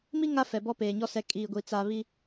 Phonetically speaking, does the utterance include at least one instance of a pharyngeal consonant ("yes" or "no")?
no